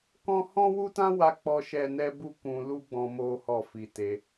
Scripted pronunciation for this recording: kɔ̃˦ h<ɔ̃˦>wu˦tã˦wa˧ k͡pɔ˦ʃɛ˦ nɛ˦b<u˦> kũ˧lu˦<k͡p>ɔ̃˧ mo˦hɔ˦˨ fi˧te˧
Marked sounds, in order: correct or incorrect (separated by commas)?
correct, correct, incorrect